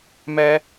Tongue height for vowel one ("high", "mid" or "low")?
mid